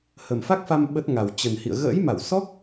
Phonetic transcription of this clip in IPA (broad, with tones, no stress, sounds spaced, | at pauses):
h ə˨˩ m f a˦˥ k̚ f a˧ m ɓ ə˦˥ t̚ ŋ a˨˩ w t͡ɕ ə˨˩ n h ḭ˧˨ ə̯ ɣ ə̰ː˧˥ j m a˧˩ w s ɔ˦˥ k̚